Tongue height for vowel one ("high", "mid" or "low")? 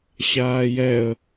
low